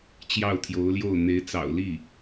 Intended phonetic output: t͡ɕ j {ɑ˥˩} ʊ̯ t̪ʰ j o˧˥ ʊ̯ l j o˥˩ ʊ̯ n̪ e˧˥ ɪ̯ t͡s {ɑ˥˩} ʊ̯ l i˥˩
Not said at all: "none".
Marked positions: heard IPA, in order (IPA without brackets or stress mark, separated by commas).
ɑ˥˩, ɑ̰˨˩